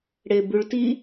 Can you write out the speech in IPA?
ɽ e b ʉ ɭ t i

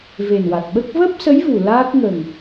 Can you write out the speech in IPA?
v e˨˩ n w a˨˩ t̚ ɓ ə˦˥ k̚ v əː˦˥ p̚ s ə˧˥ j v u˨˩ l aː˦˥ k̚ ŋ ə˨˩ ŋ

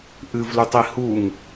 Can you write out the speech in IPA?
ʔ ɨ v l u tˤ i h u ŋ

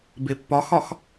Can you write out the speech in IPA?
b e pː ɒ x ɒ x

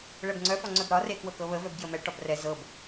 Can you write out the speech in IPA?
ɭ ɛ b ŋ͡ǀ œ f ɒ ŋ͡ǀ œ b ɾ ɒ r e k w ɤ k ɤ β ə v œ b ɡ j ə m ɛ ʈ ɒ b r ɛ z ɤ b

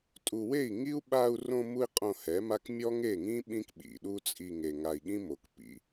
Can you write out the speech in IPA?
tʼ u˨ w e˦˨ i̯ ŋ i˦ u̯ ɓ a˧ u̯ r õ˧ m u˧ i̯ qʼ õ˧ h ɛ˨˦ m a˦ k mʲ ɔ˦ ŋ e˦˨ ŋ ĩ˦ ɓ ĩ˦ k ɓ ḭ˨ ɗ u˦ t͡sʼ i˧ ŋ e˨ ŋ a˨ i̯ ɠ ĩ˦ m o˨ k p ḭ˧

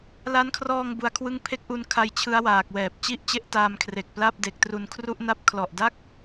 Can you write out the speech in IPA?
l a˦˥ n kʰ r ɔː˧ ŋ b u˦˥ a̯ kʰ w ɯ˥˩ ŋ pʰ e˦˥ k̚ ʔ u˧ n kʰ a˧ j t͡ɕʰ ɯ˦˥ a̯ w aː˨˩ k̚ w ɛː˨˩ p̚ t͡ɕ i˥˩ ʔ t͡ɕ e˥˩ ʔ t aː˧ m kʰ r e˨˩ k̚ p l a˥˩ p̚ d e˨˩ k̚ t r u˧ n kʰ r u˥˩ ʔ n a˥˩ p̚ kʰ l ɔ˨˩ ʔ d a˥˩ k̚

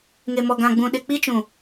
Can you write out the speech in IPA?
ŋ e˨ m ɔ˨ ɡ ã˨ ɡ͡b ũ˨ ɗ ɪ˨ k͡p i˦ t͡ʃ ũ˨

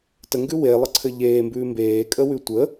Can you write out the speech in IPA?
t ə ŋ ɡ ʉ w e lˠ ə ǀʰ ɘ ʎ eː m b ʉː m b eː kʼ ə w ʉ tʷ ə

